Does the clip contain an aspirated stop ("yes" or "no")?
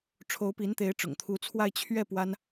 yes